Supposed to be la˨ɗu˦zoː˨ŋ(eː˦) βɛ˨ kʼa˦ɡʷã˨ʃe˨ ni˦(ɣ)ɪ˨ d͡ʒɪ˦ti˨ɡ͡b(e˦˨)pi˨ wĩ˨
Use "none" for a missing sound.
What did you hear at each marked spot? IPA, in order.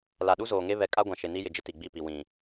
e˦, j, i˦˨

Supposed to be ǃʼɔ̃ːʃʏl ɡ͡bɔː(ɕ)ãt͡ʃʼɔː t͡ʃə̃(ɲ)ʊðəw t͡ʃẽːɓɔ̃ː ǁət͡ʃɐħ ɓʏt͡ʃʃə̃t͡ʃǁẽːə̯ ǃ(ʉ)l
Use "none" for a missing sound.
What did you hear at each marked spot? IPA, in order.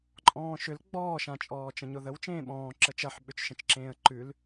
ʃ, ɲ, ʉ

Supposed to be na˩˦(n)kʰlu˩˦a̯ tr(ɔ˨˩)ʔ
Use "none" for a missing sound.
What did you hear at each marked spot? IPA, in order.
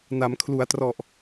m, ɔ˨˩

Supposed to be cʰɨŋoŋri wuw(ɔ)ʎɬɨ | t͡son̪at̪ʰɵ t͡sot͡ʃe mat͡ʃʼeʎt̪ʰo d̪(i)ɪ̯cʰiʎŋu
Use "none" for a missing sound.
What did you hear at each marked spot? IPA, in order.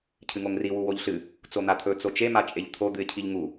o, ɨ

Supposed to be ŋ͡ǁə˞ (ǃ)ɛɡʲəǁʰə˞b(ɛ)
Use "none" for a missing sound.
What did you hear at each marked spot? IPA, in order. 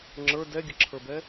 d, ɛ

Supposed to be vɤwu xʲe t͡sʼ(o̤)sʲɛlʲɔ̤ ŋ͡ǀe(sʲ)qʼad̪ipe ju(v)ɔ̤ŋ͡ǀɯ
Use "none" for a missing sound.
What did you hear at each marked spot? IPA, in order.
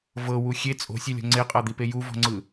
o̤, none, v

